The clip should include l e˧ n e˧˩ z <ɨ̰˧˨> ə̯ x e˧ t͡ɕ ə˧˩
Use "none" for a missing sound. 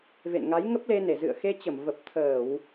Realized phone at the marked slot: ɨ̰˧˨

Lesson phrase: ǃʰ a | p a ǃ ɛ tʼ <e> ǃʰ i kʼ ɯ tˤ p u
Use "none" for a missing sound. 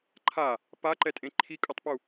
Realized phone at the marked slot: ẽ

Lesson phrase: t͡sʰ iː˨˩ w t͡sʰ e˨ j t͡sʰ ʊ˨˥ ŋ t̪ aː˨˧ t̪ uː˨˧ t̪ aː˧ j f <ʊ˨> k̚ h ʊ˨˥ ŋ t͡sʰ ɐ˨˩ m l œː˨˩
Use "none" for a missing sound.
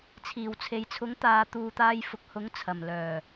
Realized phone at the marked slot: ʊ˨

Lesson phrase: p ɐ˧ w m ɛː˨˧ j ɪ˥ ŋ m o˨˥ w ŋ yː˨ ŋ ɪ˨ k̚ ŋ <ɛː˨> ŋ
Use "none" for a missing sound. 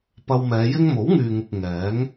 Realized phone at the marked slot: ɛː˨˥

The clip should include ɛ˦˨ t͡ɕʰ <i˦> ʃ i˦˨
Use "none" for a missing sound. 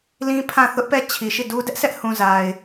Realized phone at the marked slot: i˨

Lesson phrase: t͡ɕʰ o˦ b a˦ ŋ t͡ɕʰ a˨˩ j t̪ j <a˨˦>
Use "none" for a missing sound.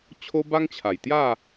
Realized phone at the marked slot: a˥˧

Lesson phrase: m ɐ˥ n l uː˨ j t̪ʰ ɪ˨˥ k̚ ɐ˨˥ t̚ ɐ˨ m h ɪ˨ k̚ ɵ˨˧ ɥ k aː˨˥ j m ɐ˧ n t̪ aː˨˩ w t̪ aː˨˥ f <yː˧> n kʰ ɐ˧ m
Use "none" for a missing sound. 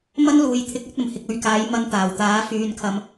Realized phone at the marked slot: yː˧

